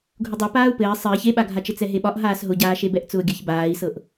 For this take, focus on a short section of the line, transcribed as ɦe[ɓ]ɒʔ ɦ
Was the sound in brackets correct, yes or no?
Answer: yes